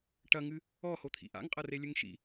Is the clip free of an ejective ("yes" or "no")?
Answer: no